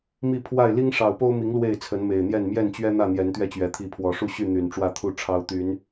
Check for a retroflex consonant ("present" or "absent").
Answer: present